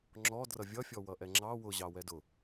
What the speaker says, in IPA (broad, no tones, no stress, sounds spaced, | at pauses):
ŋ͡ǁ ɔ d r ʌ vʲ ʌ fʲ ɔ w ʌ ʔ ɛ ŋ͡ǁ ɑ w ʊ ʑ ɑ w ɛ d ʊ